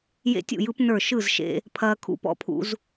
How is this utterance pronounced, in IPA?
j ḛ˦ tʲ ṵ˥˨ j ɯ˦ p n ə˞˥˨ ʃ ɯ˥˨ z ʃ ḛ˦ | pʰ ɐː˦ kʰ ṵ˦ p ɔ̰˦ pʰ ṵ˦ z

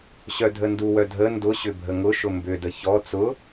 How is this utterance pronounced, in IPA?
ɕ œ dʱ ə n d u w œ dʱ ə n d ʊ ɕ ʏ bʱ ə ŋ ʊ ʃ ʊ m b ʏ d ə ç ɔ t͡s ʊ

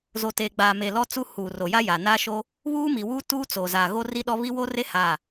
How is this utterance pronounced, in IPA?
z o˨ t eː˨ ɡ͡b aː˨ m e˨ l ɔ˦ t͡s u˦ h uː˨ r o˨ j a˦ j a˨ n aː˦ ʃ o˦ | β uː˦ m i˨ w uː˦ t uː˦ t͡s o˨ z aː˨ ɣ o˦ r i˦ ɗ ɔ˦ β i˦ w o˦ r e˦ h a˦˨

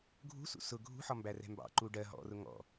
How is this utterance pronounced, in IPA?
ɡʱ ṳ s ṵ s ʊ ɡʱ ṳ ħ ɒ m b æ r ɛ̤ m b ɑ̰ ǃ u ɖ ɜ ɦ ɔ̰ r ʊ ŋ ɔ̰

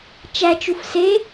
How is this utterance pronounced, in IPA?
t͡ʃ æ t͡ʃ u f s e

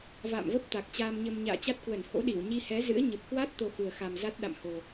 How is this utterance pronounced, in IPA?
v a̰ː˧˨ m v ə˦˥ p̚ t̪ a˨˩ k̚ t͡ɕ aː˧ m ɲ ə˧ m ɲ a̰ː˧˨ t͡ɕ a˦˥ t̚ k w ə˧˩ n h o̰˧˥ ɗ i˧˩ w ɲ i˧ h ɛ˨˦ z ɨ̰˧˥ ə̯ ɲ ə˨˩ p̚ k w a˦˥ t̚ t̪ o˧ x u˨˩ ə̯ x a˨˩ m z a˦˥ t̚ ɗ a̰˧˨ m h o˨˩

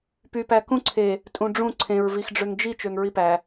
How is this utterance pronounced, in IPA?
p y p æ k ũ ǀʰ e | tʼ ũ ɖ͡ʐ ũ ǀʰ ẽ ɹ v i x ɖ͡ʐ ø ŋ d͡ʒ i t͡ʃ ø ŋ ɹ i p æ

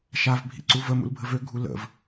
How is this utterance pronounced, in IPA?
ʃ a v bʱ ḭ ǀ u v ə m ṵ l bʱ ə v ø ɡʱ u l ə̰ v

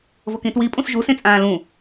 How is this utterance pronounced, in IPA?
v o k ĩ t w i pʼ ũ s ʒ u s ẽ t͡sʼ ãː l ũ

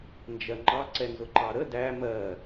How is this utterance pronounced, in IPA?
n d͡ʒ ɜ ŋ͡ǃ ɑ ǀ ɛ n z ʊ ǃ ɑ ɾ ə d æ m ɜ

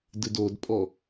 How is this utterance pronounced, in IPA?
d ɨ d o d pʼ ɔ

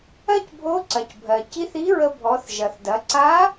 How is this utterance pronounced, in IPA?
ɜ˥ c bʱ o˧˥ ǀ ɐ˩ c bʱ ɜ˩ c i˧˥ θ i˧˥ ɹ ə˧ bʱ ɔ˩˧ θ ʒ ɐ˩ θ d ɐ˩˧ ǀ a˧˥

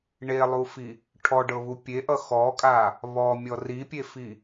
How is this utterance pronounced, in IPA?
ɳ e lˠ u f i | ʈʰ ɔ ɖ ɤ β u pʲ e ʔ ʌ x ɔ kʼ a | β ɔ mʲ ɔ r i pʲ e f i

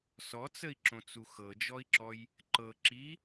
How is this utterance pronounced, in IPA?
s ɔ t͡s ə i̯ ǁ õ t͡s u x ɤ d͡ʒ ɔ i̯ ǁ ɔ j | ǃ ɤ ǁ i

